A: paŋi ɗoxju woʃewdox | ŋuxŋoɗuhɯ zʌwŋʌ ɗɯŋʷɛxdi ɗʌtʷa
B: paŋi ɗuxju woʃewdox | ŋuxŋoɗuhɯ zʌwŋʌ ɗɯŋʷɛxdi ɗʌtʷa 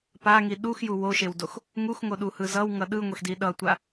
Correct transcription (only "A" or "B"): B